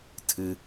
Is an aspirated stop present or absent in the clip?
present